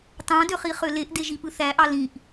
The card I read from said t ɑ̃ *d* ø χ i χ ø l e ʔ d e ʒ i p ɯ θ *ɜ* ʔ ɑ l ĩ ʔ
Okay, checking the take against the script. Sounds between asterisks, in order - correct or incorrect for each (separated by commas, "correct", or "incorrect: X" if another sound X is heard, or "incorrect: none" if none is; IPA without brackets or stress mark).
correct, incorrect: æ